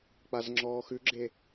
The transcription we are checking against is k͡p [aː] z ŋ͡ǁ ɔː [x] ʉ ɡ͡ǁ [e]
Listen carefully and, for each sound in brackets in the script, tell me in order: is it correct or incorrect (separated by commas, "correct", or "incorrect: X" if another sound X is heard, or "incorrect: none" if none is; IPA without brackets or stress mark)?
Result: incorrect: a, correct, correct